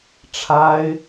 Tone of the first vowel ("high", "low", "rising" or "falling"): high